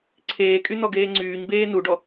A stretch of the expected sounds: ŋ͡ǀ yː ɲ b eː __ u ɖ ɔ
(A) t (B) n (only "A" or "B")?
B